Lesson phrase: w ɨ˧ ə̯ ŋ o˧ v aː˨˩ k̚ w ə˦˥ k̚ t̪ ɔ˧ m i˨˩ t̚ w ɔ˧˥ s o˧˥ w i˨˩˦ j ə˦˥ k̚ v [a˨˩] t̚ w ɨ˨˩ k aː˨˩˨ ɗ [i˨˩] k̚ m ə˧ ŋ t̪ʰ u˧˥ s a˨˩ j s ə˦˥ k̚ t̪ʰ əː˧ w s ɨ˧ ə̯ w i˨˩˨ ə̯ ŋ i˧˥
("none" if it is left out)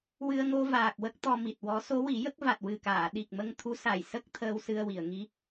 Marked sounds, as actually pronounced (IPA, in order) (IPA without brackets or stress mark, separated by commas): a˨˩, i˨˩